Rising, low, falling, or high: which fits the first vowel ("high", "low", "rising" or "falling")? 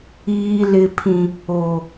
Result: low